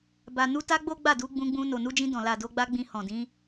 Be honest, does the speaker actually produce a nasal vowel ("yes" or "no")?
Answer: yes